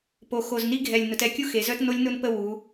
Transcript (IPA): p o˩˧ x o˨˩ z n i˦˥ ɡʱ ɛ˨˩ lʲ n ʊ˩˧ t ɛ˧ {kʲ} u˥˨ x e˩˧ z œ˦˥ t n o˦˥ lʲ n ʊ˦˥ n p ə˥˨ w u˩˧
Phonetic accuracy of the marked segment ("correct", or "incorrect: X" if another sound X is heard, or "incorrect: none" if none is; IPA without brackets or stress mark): correct